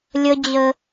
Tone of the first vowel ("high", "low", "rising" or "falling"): high